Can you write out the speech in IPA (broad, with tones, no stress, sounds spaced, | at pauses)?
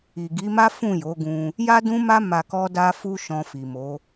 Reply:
i˨ ɡ i˨˦ m a˦ f ũ˦˨ j o˨˦ ɡ ũ˧ | j a˦ d ũ˦ m a˦ m a˧ k ɔ˦ d a˦ f u˦ ʃ ɔ̃˧ f i˨ m o˨˦